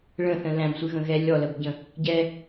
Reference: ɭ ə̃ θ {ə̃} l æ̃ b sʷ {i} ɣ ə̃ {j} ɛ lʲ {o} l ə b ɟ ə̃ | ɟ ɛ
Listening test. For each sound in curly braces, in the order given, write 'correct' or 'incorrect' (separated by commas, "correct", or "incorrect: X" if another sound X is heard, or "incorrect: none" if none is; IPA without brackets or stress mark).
correct, incorrect: ɨ, incorrect: ɣ, incorrect: ɔ